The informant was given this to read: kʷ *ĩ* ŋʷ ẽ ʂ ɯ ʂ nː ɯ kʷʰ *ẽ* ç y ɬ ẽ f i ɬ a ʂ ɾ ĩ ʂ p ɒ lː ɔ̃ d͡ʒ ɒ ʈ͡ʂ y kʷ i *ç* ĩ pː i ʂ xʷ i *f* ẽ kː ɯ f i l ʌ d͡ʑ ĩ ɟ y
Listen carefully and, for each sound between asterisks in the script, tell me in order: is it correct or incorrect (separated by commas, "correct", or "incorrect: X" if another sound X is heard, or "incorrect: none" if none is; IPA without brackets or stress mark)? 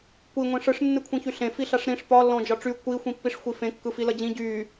incorrect: i, incorrect: ĩ, incorrect: xʷ, correct